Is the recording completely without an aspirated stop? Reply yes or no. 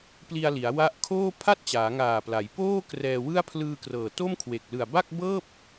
no